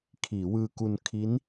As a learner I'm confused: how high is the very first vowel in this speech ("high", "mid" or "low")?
high